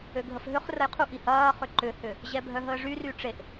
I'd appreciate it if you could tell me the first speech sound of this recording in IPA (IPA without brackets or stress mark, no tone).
ø